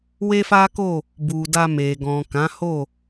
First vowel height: mid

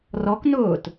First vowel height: mid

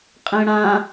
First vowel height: mid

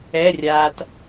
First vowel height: mid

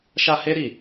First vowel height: low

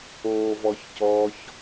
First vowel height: mid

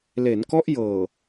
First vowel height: mid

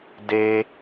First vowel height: mid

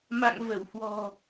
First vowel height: low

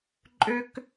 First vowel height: mid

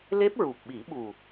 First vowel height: mid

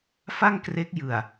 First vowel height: low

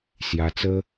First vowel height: low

